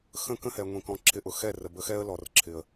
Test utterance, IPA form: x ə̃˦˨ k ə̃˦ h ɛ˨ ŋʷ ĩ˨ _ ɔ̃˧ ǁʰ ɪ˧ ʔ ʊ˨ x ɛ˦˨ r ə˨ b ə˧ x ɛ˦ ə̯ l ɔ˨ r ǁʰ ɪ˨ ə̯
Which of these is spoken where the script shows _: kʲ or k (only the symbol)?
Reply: k